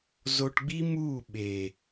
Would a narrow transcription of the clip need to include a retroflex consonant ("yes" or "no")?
yes